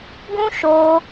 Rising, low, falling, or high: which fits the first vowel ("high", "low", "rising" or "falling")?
high